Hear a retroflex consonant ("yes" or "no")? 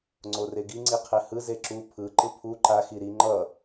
no